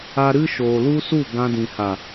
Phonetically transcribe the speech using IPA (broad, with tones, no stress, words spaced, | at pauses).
a˦ ɾɨ˦ʃoː˨lu˦su˦˨ ɡã˧dĩ˨ha˨